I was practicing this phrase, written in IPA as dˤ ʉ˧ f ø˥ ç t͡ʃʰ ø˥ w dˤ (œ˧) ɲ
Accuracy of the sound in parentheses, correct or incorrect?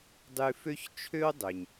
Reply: incorrect